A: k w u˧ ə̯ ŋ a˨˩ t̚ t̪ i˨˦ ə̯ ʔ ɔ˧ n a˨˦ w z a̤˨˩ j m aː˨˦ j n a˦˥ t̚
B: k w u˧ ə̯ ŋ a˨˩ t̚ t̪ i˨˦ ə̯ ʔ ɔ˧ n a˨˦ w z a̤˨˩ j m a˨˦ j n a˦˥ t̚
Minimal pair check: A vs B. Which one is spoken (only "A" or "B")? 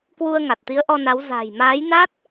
A